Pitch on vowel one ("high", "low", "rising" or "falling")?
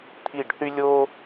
falling